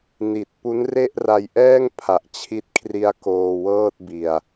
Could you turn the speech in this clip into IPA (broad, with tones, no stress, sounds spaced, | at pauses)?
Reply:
n i˨˩ t̚ p u˦˥ n r e˥˩ ʔ r a˧ j ʔ ɛː˥˩ ŋ pʰ a˨˩ ʔ t͡ɕʰ i˦˥ t̚ kʰ r i˦˥ a̯ k oː˧ w ɤː˥˩ t̚ b i˧ a̯